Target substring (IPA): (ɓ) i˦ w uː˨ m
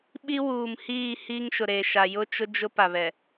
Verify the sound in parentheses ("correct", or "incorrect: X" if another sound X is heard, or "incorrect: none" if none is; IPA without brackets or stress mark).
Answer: correct